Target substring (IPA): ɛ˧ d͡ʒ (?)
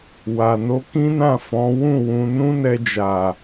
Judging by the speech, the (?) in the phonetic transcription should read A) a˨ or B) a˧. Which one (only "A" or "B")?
A